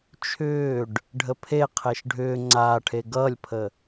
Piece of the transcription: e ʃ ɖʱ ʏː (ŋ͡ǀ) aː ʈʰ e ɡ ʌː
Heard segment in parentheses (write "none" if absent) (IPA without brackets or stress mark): ŋ͡ǀ